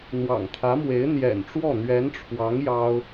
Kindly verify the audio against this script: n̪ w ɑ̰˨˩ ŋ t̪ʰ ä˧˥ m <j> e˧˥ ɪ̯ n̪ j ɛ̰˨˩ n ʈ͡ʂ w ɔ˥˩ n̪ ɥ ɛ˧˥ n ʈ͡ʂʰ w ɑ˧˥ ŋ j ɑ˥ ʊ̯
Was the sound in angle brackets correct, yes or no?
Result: no